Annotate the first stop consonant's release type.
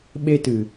implosive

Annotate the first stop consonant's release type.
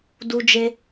plain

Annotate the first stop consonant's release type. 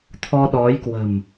aspirated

